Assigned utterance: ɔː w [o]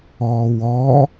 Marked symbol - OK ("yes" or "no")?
no